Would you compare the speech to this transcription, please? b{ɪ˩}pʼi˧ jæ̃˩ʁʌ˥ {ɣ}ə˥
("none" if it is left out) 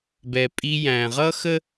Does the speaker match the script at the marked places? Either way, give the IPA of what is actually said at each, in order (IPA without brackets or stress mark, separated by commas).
ɛ˩, x